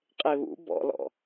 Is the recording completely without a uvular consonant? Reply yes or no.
no